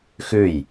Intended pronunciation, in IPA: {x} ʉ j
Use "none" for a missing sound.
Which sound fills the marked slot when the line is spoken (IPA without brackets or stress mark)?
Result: x